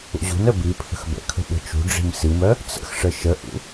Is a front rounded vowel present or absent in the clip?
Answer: present